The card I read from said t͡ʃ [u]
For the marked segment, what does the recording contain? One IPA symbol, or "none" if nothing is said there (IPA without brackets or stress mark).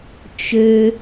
ø